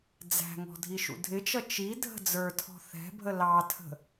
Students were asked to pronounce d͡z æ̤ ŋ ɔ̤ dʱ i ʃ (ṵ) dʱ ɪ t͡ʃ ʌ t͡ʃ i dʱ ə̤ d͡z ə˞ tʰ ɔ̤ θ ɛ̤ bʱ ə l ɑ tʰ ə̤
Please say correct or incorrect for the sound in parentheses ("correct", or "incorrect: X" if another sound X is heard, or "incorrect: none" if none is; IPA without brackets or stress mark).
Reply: correct